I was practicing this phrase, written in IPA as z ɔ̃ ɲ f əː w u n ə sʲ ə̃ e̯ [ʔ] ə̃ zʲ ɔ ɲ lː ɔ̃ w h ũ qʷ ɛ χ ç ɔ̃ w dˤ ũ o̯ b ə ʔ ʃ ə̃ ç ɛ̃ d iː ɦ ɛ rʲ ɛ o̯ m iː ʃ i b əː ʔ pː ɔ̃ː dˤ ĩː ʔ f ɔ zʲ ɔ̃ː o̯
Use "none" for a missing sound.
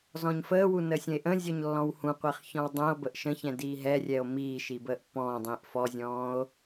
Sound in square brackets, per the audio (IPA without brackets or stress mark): ʔ